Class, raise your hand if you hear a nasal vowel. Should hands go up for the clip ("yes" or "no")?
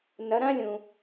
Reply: yes